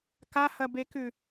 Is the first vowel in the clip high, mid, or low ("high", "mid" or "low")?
low